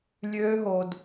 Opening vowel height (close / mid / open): mid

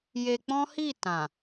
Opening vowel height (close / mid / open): mid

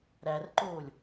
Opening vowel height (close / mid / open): open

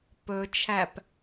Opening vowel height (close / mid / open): mid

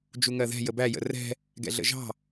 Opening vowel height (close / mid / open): close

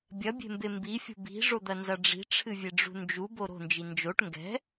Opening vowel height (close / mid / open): open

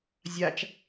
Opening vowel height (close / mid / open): open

